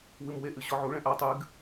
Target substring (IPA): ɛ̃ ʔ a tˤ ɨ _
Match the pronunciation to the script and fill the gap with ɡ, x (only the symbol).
ɡ